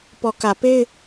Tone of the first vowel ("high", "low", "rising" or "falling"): low